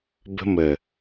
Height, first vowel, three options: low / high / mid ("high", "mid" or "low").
mid